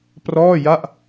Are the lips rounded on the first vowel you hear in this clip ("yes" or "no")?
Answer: yes